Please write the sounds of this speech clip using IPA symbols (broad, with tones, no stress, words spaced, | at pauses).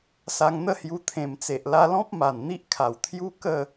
sa˧ŋn̪ə˥˧hju˧ t̪ʰẽ˨˩mt͡se˨ʔla˧lɔ̃˦p̚ ma˨˩nn̪i˦ʔkʰa˨˩w t̪ʰju˦kə˥˧